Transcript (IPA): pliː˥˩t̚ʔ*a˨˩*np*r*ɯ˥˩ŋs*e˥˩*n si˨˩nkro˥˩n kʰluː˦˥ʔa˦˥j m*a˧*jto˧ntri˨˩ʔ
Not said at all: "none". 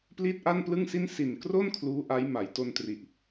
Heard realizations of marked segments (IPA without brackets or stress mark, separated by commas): a˥˩, l, i˥˩, a˩˦